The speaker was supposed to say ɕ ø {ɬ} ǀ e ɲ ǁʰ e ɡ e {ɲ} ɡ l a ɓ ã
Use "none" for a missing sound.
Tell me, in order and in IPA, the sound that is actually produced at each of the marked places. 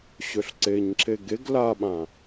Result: ɬ, none

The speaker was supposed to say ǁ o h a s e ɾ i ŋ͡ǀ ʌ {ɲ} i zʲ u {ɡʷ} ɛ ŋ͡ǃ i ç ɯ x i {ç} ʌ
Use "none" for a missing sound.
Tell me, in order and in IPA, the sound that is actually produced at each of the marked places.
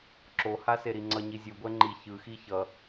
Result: ɲ, ɡʷ, ç

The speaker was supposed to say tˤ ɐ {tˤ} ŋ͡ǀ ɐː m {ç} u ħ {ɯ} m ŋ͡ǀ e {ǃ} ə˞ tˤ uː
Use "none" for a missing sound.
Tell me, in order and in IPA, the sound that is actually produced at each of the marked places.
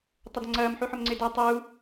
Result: d, ħ, ʊ, d

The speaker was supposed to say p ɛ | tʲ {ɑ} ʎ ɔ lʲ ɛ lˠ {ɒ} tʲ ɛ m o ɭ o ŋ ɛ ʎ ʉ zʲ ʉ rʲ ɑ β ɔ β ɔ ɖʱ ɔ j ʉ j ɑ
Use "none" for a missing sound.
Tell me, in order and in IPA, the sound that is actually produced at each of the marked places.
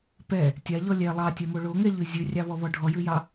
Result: a, ɑ

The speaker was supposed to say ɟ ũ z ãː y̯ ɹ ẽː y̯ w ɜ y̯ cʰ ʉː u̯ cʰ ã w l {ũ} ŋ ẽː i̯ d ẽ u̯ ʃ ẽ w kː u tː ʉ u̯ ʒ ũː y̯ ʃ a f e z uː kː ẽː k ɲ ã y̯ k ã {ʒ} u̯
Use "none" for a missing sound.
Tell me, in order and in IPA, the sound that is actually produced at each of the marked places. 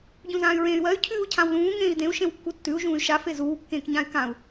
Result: ũː, none

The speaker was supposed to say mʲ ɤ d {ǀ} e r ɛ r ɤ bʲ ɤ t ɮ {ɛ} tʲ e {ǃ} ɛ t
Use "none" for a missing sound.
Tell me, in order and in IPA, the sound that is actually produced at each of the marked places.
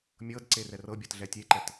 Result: ǀ, ɛ, ǃ

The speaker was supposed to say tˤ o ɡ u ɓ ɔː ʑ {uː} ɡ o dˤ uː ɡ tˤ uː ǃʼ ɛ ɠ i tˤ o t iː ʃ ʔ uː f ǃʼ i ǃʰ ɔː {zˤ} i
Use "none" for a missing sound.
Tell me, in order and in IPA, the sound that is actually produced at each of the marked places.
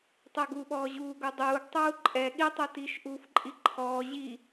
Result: uː, ʑ

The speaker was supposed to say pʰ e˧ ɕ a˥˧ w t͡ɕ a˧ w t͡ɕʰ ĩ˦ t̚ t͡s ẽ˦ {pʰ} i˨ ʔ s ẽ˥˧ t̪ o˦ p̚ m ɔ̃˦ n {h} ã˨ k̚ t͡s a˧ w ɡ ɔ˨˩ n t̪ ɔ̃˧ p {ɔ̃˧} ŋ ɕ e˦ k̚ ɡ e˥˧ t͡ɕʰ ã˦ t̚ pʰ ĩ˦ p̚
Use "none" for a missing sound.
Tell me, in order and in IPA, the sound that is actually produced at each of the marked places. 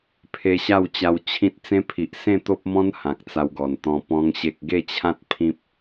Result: pʰ, h, ɔ̃˦

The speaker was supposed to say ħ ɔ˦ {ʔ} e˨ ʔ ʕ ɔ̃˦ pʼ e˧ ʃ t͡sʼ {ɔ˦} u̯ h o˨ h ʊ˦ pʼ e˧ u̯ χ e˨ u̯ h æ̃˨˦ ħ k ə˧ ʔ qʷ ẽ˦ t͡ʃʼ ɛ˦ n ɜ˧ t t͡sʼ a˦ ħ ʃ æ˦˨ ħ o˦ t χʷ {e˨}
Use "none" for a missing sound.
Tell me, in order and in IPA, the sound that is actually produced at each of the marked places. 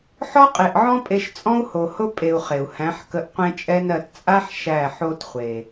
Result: qʼ, ɔ̃˦, e˨

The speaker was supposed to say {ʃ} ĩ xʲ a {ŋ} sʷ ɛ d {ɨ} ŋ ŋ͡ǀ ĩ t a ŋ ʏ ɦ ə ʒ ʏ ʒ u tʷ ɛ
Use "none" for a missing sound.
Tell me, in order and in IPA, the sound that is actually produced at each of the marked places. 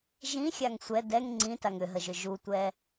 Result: ʒ, ŋ, ɛ

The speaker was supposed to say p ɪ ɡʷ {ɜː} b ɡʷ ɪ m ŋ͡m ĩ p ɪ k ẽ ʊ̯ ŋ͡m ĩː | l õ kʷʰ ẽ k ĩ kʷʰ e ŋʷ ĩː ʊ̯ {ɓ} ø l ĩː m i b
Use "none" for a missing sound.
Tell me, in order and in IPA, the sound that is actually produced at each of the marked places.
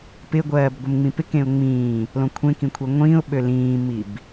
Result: ɜː, ɓ

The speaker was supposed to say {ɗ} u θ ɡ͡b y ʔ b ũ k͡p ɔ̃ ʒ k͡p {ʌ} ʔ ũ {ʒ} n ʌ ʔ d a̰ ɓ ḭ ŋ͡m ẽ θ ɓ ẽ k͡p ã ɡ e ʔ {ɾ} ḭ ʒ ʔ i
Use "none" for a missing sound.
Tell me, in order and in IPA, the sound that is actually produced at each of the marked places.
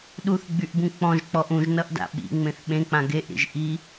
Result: ɗ, ɔ, ʒ, ɾ

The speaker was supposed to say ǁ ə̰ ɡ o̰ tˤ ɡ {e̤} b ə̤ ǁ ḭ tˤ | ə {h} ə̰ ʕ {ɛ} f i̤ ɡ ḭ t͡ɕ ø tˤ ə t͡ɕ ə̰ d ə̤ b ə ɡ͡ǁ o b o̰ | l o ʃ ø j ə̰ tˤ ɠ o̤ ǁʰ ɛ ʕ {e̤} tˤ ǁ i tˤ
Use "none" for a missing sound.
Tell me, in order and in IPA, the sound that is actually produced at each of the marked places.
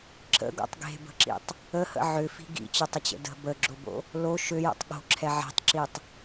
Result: e̤, h, ʏ, e̤

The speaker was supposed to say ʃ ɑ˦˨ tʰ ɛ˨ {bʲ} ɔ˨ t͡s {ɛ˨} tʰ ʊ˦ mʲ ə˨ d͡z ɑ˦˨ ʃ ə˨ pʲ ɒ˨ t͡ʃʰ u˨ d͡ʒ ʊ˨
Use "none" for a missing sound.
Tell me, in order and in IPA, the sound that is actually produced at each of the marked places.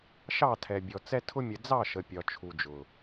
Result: bʲ, ɛ˦

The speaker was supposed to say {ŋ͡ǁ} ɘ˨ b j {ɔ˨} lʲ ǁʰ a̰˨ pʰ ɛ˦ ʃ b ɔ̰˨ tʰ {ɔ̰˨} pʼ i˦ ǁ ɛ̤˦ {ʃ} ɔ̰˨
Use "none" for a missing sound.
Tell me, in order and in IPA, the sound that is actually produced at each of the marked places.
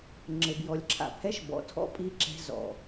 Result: ŋ͡ǁ, ɔ˨, ɔ̰˦, z

